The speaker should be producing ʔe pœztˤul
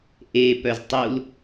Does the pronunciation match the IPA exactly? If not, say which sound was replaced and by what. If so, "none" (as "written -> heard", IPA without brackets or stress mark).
none